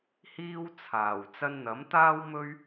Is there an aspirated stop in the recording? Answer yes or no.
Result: yes